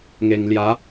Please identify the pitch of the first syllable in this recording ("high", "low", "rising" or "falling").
low